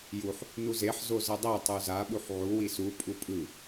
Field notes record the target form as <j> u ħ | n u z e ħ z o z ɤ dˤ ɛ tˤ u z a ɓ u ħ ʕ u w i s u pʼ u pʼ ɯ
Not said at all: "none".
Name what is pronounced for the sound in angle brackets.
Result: j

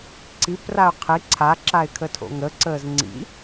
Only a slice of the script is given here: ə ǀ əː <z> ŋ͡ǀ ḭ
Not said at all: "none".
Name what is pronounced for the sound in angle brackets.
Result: z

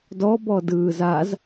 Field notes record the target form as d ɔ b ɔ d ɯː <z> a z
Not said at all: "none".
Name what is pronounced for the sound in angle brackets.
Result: z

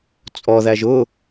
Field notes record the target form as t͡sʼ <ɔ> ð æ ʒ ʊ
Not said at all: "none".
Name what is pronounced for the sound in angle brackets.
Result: ɔ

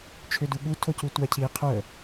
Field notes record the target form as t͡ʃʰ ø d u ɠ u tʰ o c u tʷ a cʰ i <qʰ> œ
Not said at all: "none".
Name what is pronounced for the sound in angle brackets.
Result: qʰ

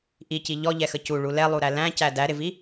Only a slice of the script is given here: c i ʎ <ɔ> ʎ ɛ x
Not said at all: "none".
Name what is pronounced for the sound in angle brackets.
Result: ɔ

